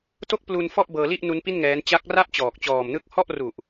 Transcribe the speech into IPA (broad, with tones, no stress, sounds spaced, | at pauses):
t o˦˥ k̚ p l u˧ n f ɔ˥˩ ʔ b ɤː˧ l i˥˩ ʔ n u˦˥ n p i˥˩ n ŋ ɛː˦˥ n t͡ɕ a˦˥ k̚ r a˥˩ p̚ t͡ɕ ɔː˨˩ k̚ t͡ɕ ɔː˨˩ m n ɯ˦˥ k̚ h ɔ˥˩ ʔ r u˨˩ ʔ